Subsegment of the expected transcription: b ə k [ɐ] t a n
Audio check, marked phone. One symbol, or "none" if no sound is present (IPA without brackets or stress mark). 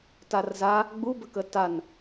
ə